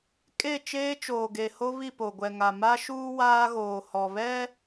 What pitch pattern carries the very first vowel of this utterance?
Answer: falling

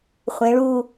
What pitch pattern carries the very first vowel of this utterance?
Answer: rising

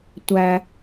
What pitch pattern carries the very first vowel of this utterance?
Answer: high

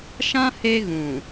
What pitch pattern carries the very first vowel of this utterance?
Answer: high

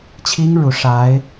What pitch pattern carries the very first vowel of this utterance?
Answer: high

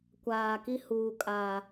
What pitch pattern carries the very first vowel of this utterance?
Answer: low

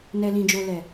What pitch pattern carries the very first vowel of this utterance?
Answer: low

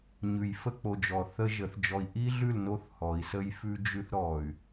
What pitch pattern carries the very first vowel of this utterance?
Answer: low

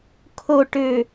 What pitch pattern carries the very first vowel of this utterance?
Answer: low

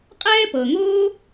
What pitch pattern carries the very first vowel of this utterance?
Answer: high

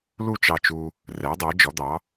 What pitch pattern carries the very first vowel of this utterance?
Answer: falling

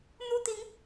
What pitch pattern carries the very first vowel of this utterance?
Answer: high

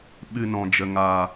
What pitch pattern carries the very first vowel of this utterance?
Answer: low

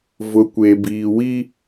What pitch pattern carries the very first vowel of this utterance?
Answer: low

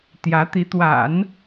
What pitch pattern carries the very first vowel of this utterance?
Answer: rising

